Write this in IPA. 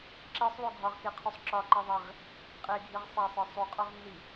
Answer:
ǁ e sˤ w o ɡʱ ɒ ʁ k e qʰ u sˤ ǁ ɒ ǃ i ðˤ e ʁ | qʼ e ɡʱ i ʁ sˤ æ sˤ ɒ sˤ u qʼ ɒ ʁ nː i

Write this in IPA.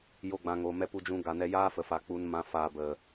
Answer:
j o˧ ɡ͡b ã˨ ŋ o˨ m ɛ˧ p u˧ d͡ʒ ũ˧ ɡ a˨ n ɛ˧ j aː˦ f ə˨ f a˨ k͡p u˨ n m ã˨ f aː˧ b ə˨

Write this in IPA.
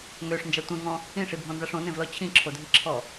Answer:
ŋ ø ʂ n d͡ʒ a tʷ ẽ ŋ ɔ̃ | ĩ ʂ i bʱ ɔ̃ n z a ʂ õ n ẽ v l ɔ t͡ɕʰ ĩ ǁʰ o dʱ i ǁʰ ɔ

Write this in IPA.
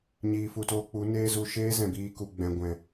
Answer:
ɲ iː˨ f u˨ t oː˧ k͡p u˨˦ n eː˦ z u˧ ʃ eː˦ z ɛ̃˨ b iː˧ k u˨ ɡ͡b ɛ̃˨ ɡʷ ɛ̃˨

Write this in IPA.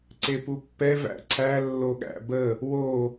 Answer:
ǀ e p u pː ɛ v æ̰ ǀʰ æ lː o ɠ æ̰ b ə | w o

